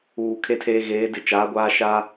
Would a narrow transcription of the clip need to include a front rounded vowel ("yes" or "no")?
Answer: no